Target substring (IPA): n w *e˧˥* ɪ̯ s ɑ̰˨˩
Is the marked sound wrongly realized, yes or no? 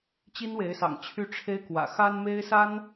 no